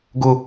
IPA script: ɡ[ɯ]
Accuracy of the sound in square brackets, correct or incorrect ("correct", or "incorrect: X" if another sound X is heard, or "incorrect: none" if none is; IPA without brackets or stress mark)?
incorrect: ʊ